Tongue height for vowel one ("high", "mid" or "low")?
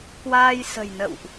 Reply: low